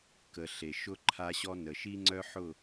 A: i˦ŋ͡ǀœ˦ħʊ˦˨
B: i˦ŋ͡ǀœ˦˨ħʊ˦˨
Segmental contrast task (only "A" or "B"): A